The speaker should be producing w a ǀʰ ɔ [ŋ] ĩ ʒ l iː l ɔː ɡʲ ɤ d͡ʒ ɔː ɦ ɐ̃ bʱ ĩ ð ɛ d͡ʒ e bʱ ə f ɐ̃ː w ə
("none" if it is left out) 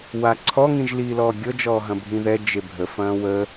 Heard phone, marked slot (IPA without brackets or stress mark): ŋ